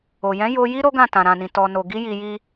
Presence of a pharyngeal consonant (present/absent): absent